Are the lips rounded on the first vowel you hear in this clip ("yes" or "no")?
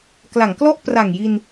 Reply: no